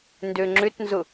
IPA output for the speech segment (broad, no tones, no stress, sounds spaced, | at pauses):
n d ø ŋ͡ǁ ʏ t n z ʊ